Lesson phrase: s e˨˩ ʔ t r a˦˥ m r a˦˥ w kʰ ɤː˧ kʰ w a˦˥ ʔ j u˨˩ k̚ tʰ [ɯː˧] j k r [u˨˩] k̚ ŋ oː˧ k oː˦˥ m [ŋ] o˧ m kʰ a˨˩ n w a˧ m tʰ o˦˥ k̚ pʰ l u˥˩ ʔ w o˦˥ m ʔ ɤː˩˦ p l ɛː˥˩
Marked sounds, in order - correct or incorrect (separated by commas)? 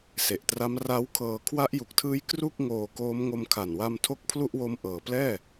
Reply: incorrect, incorrect, correct